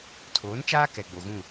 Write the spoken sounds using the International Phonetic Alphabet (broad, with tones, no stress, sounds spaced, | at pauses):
tʰ oː˨˦ n t͡ʃ aː˦ k ɛ˨ ɡ͡b o˨ ɣ ũ˦˨